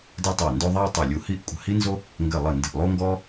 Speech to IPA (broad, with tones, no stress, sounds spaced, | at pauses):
d ɘ˦ tˤ æ˧˩ n d o˦ ðˤ æ˦ tˤ ɛ˧˩ lʲ u˧˩ h i˦ ʔ kʷʼ ə̤˧˩ h i˦ n z o˦ | ŋ ɡ ɘ˧˩ lˠ ə˧˩ n d ə̤˧˩ ʔ lˠ o˦ ŋ ɡ ɔ˦